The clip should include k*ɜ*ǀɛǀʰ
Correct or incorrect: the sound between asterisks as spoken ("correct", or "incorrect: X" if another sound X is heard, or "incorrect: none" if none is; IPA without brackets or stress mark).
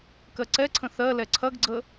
correct